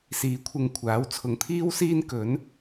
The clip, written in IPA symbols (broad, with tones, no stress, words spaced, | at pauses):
siː˨˥kʷʰɪ˨ŋ kʷʰaː˨˥wt͡sʰʊ˨ŋt̪ʰiː˥wsiː˥n kɵ˨˥n